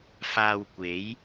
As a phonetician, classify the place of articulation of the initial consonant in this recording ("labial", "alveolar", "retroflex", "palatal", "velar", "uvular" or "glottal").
labial